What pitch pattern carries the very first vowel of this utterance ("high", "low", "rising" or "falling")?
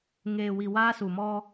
low